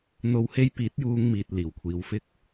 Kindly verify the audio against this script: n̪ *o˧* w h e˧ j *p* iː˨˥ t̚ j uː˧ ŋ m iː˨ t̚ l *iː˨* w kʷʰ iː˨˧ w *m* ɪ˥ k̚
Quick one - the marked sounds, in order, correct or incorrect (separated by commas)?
correct, correct, incorrect, incorrect